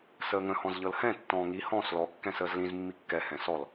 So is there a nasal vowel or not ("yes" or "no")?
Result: yes